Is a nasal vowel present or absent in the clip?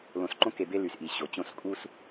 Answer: present